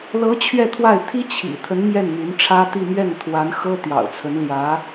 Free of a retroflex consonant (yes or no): no